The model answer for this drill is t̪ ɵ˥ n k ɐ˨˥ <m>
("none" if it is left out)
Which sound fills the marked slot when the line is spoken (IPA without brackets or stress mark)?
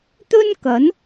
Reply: n